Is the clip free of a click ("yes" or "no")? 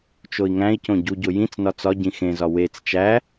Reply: yes